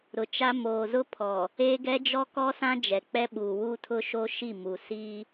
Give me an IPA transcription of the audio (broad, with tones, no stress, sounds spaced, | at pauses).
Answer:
ɾ ʊ˨ t͡ʃ a˦ m oː˨ z ʊ˦ pʰ ɔ˨ | eː˦ ɡ ɛ˦ d͡ʒ ɔ˦ k ɔ˦ s ã˦ d͡ʒ ɛ˨ k͡p ɛ˦ ɓ uː˨ w u˦ tʰ ʊ˦ ʃ oː˦ ʃ i˦˨ m u˨ s iː˦